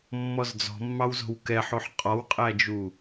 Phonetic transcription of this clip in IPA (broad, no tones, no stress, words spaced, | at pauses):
mːɔzd͡zɔ̤mːɑwzo̤w kɛħoħ qʼɔwqʼæd͡ʒu